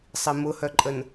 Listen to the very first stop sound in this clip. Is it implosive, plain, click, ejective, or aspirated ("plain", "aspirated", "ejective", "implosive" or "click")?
click